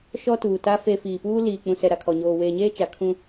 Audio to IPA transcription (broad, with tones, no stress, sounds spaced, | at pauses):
ʃ ɔ˦ t uː˨ t a˦ f e˨ f iː˨ p uː˦ l iː˨ k͡p ũ˨ s ɛ˨ ɾ a˨ kʰ ɔ˨ ɲ oː˨ w eː˨ ɲ eː˦ t͡ʃ a˨ kʰ ũ˦